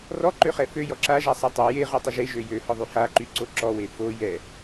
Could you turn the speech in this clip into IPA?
rɔǃøχɛ føjɔ ǁaʒasˤɛ tˤø jeʁøtˤə ʒeʒø jøhɔðˤy haǃyǀo ǁɔwe fo jɛ

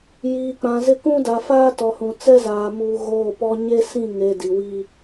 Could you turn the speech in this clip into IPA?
jiː˨k͡pã˨zɪ˦ kũ˦da˨faː˦ tɔ˨hũ˨ t͡sɛ˦zaː˨ muː˨ ɣoː˦˨pɔ˦ ɲe˦sĩ˦˨ŋe˨ di˨wi˦

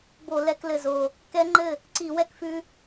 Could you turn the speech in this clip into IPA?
bo˧˩˧lɛ˧˩˧klɘ˨˩zo˨˩ | kɛ˦˥ŋ͡ǃɘ˥˩ | ǀi˧˩˧wɛ˧kfʉ˧

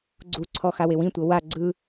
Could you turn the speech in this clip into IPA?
ɡ͡ǀuǀʰɔ xawewĩtʷɤ wa ɡ͡ǀɯ

